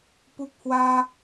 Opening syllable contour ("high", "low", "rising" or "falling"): high